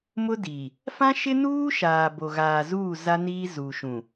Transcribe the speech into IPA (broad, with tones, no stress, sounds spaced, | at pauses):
m ʊ˦ d iː˨ | f ã˦ ʃ ɪ˦ n uː˦ ʃ aː˨ b o˨ ɣ aː˨ z uː˦˨ z a˦ n iː˦ z u˨ ʃ ũ˨